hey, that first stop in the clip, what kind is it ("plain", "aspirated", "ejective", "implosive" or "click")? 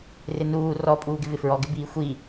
ejective